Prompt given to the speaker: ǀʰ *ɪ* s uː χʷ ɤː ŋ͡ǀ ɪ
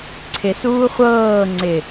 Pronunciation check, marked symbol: correct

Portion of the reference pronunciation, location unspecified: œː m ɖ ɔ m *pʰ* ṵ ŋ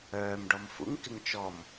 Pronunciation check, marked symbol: incorrect: f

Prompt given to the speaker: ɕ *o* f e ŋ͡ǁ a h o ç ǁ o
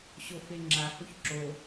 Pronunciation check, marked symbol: correct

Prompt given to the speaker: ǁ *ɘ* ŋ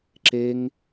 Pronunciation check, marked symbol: incorrect: e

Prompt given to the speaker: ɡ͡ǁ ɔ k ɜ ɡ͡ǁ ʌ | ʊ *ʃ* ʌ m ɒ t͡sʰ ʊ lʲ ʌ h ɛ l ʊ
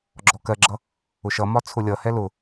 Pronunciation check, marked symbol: correct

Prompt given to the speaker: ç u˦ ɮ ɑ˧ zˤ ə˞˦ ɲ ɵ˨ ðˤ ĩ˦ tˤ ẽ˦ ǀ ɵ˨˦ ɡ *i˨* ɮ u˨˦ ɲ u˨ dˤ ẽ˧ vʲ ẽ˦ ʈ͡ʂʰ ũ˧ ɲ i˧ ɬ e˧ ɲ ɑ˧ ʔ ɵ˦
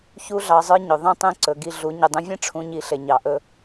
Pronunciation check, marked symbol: incorrect: i˧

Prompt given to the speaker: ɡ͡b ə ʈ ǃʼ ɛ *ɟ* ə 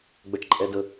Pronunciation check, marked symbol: incorrect: d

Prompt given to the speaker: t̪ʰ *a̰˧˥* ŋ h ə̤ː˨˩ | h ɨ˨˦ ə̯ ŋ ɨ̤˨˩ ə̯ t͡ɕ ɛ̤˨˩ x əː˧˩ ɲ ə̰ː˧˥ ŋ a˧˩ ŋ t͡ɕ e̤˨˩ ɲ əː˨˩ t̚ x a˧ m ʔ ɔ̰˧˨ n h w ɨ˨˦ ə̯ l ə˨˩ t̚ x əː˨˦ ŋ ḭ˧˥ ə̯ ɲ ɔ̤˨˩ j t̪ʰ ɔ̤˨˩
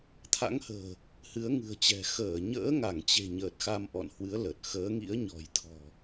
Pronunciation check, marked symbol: correct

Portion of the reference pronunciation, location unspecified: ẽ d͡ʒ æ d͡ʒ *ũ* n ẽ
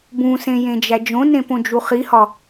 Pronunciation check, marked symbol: incorrect: õ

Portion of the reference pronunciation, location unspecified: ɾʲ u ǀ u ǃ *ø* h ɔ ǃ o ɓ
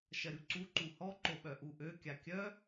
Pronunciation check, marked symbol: incorrect: u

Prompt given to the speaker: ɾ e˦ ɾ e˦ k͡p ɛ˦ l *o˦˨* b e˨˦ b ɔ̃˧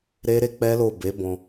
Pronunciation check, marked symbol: correct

